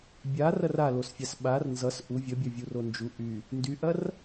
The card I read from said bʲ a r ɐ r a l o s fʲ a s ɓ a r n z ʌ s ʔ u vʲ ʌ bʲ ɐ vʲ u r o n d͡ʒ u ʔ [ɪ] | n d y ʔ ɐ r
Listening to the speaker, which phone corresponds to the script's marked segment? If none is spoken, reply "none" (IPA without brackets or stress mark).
y